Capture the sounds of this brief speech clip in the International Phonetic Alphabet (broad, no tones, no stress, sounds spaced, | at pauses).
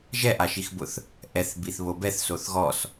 ʒ ɛ ʔ a ʃ i x b ʊ θ | ʔ ɛ θ b i θ β o b ɛ θ s o θ ɣ ɔ s